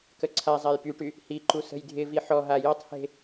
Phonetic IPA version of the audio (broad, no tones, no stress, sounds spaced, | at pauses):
k ə ǀʰ a zˤ a j p y ʈ y | h i ǃ u s ə̤ j dʱ ɪ v i ħ ɔ ɦ a j ɔ tˤ h e̤